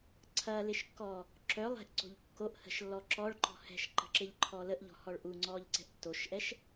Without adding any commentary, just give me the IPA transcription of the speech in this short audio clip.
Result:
ǀʰ ɐː l ɪ ʃ kː ɔː | ǁ œ lˠ ɛ̤ ʔ ǀ o̤ ʎ kː o ʔ h ə̤ ʃ lː ɔ ǁ ɔ ɭ ǃ ɔ̤ h ɛ̤ ʃ ǃ ə̤ ǁ ɪ ʎ ǃʰ ɔ l ə ʔ ʎ ɔ̤ h ɔ ɭ ʔ u ŋ͡ǀ ɔː ʎ ǀ ɛ̤ ʔ tː o ʃ ʔ ɛ ʃ

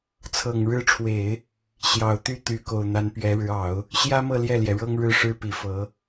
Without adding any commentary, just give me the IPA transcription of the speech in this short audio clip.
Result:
t͡sʰ ɤ˨˩ ŋ ɻ ɻ̩˧˥ ʈ͡ʂʰ w e˨˩˦ ɪ̯ | ɕ j ɑ˨˩ ʊ̯ t̪ y˥˩ t̪ y˧˥ k o˨˩ ʊ̯ n̪ a˧˥ n p ɥ ɛ˧˥ ɻ ɻ̩˧˥ ɑ˨˩˦ ʊ̯ | ɕ j ä˥ m ɤ˥˧ l j ɛ˥˩ l j ɛ˩ ɻ ɤ˥ ŋ ɻ ɻ̩˥˩ ʂ ɻ̩˥ p i˨˩ f ɤ˧˥

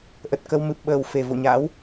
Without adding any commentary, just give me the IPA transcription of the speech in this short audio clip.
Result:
ʔ ə˨˩ t̚ k ə˧ w m ɨ˨˩ p̚ ɓ əː˨˩ w f e˨˩ v o̰˧˨ ɲ a̰ː˧˥ w

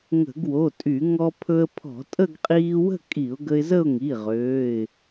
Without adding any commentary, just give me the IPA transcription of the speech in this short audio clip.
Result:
ŋ ə̤˧˩˧ ɡ w o˩˧˩ tʼ y˧˩˧ ŋ ɔ˧ pʰ ɵ˧ ə̯ pʰ ɔ̤˧˩˧ tʼ ə˥˧ ɡ qʼ iː˧ w ə̤˥˧ kʼ i˧˩˧ ʊ̯ ɡ ə˧ ɪ̯ z ə˥˧ ʊ̯ ŋ i˩˧˩ ʁ øː˩˧˩ ɪ̯

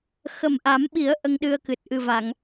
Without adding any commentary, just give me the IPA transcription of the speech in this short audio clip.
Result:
x ə˨˩ m ʔ a˨˩˦ m ɓ i˨˩˦ ə̯ ʔ ə˧ ŋ ɗ ɨ˧ ə̯ k ɨ˨˩ t̚ ʔ ɨ˨˩ v a˨˩˨ ŋ

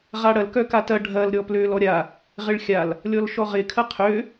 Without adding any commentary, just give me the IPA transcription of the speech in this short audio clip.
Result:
ʁ a ɽ ɐ l k œ k a t ɐ ɖʱ ɐ l ɾʲ ɔ p l ø l ɔ ɾʲ a | ʁ ɪ ɭ xʲ a l | lʲ ɔ l ʃ ɔ ʁ ɪ kʰ ɐ qʰ ø

